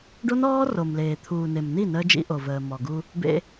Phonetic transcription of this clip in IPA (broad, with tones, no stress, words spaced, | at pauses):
ɖo˦nɔː˦ro˨mleː˨ t̪ʰuː˨ne˨mni˦˨ nəː˦d͡ʒḭ˦ʔo˨vəː˨ mɔ˨ɡu˦ | bḛ˦